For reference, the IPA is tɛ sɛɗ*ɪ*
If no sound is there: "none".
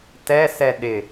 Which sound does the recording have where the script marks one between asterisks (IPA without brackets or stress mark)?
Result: ɪ